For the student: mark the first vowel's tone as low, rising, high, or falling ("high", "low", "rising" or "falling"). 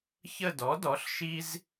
falling